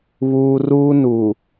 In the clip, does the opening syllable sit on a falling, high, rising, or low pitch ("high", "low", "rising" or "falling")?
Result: high